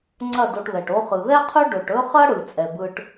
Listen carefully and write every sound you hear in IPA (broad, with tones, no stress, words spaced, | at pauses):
ŋ͡ǀɐ˦˨do˧ʈβɛ˨ʈ o˧χɯ˨ðɛ˦qʰɵ˦ ɖɵ˨ʈɵ˦χɐ˦ ɽɯ˨t͡sʼɛ˨bɯ˧ʈ